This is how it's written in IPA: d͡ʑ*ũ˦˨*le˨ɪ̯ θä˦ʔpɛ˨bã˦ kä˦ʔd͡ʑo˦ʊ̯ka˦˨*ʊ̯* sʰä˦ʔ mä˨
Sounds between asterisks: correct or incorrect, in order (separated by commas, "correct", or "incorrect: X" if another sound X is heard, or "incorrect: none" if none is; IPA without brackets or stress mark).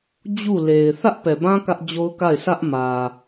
incorrect: u˦˨, incorrect: ɪ̯